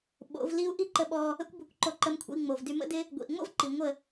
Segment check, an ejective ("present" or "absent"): absent